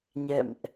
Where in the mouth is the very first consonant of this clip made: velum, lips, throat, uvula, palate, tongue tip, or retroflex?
palate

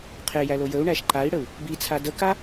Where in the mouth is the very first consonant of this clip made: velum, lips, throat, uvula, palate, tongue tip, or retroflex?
uvula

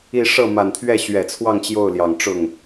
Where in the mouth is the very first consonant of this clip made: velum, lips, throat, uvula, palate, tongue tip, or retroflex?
retroflex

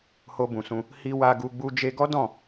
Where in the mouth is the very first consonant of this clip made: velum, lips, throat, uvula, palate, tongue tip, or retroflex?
throat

